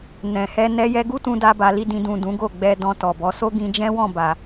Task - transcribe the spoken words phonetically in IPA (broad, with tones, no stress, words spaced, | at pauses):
nɛ̃˨hɛ˧ nɛ˧ jɛ˧ɡu˦tũ˧ da˦ba˧li˦dĩ˧ dũ˨ dũ˨˦ɡo˦˨ɡ͡bɛ˧ dɔ̃˧tɔ˨bɔ˨˦ so˦ɡĩ˧ d͡ʒɛ̃˦wɔ̃˦˨ba˨